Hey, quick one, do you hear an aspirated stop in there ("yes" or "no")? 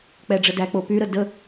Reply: no